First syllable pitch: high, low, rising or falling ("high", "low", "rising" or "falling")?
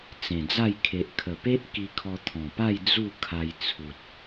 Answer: low